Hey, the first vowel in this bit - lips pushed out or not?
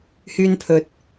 yes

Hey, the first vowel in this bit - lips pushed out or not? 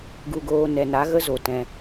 yes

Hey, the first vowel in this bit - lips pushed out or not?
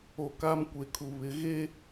yes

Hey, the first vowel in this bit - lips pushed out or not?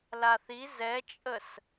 no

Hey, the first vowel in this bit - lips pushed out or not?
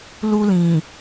yes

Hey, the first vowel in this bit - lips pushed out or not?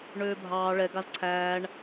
yes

